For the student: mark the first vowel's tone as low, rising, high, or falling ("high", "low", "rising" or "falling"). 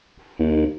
low